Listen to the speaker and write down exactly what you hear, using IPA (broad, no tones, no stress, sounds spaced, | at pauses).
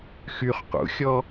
x y χ q ṵ xʲ ɔ